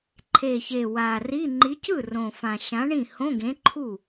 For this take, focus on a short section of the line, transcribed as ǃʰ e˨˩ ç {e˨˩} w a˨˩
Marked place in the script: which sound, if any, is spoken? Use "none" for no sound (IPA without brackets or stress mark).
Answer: e˨˩